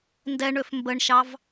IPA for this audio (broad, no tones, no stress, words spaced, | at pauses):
ndɛɳøf mbəɳʃɑv